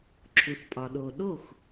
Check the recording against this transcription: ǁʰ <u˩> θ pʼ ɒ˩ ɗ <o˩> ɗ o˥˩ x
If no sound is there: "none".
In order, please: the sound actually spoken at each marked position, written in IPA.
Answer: u˩, o˩

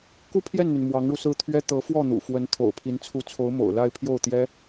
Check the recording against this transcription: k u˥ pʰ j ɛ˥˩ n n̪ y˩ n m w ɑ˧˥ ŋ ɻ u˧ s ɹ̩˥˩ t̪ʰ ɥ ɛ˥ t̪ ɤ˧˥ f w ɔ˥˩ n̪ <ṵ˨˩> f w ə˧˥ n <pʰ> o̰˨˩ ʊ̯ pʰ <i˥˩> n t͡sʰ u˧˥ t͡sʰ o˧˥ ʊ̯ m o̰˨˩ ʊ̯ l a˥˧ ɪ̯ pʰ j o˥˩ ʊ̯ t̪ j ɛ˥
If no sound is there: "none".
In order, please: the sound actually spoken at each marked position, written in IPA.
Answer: ṵ˨˩, t̪ʰ, i˧˥

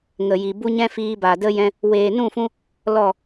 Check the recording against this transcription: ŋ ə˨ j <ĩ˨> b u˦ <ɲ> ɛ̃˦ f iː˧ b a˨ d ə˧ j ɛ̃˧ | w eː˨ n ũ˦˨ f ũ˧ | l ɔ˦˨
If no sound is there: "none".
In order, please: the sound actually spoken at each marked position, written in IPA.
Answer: i˨, ɲ

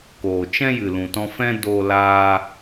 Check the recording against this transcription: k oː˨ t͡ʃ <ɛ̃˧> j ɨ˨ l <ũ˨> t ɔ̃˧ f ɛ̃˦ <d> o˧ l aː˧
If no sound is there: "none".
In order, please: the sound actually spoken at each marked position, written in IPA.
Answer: ɛ̃˦, ũ˨, d

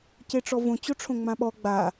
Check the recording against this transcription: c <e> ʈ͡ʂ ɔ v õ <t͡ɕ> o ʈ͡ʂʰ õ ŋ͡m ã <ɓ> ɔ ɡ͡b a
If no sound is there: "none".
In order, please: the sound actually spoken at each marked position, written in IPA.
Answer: e, t͡ɕ, ɓ

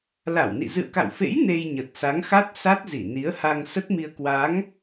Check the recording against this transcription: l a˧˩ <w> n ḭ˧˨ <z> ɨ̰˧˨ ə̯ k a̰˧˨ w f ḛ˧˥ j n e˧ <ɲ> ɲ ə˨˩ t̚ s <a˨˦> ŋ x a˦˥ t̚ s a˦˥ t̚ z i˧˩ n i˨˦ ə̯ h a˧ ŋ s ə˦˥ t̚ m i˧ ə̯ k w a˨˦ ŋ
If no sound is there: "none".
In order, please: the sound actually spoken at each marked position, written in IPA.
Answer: w, z, j, a˨˦

